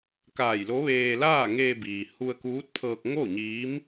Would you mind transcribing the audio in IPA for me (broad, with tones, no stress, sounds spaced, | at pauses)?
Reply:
k aː˧˩ j l o˧˥ ʋ eː˧ l aː˥˨ ŋ eː˧ b iː˩ h u˧ ə̯ k uː˧˥ t̚ pʰ ɤː˧ k̚ ŋ o˥˨ ɲ iː˧˥ m